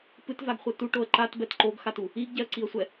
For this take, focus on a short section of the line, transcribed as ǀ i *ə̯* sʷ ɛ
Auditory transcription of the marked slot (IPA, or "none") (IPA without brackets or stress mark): ə̯